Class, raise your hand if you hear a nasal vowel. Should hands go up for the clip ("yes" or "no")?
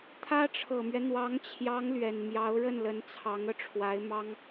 no